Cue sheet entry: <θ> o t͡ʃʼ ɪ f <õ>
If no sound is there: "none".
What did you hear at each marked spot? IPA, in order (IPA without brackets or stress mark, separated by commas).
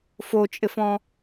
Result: f, ɔ̃